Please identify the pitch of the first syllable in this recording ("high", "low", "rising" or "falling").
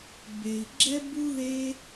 low